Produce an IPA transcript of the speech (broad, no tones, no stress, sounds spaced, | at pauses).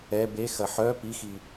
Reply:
ɛ b e x ɐ ħ œ p i x i